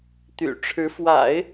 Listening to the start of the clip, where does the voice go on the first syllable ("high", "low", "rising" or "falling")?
low